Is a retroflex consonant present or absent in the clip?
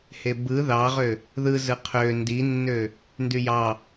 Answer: absent